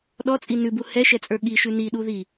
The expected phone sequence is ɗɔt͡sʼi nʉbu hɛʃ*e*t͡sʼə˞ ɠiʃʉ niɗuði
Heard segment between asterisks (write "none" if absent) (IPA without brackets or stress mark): ɛ